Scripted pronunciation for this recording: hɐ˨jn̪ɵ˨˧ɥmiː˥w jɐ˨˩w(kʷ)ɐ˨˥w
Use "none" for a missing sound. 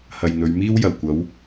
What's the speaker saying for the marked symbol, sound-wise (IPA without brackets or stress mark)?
kʷ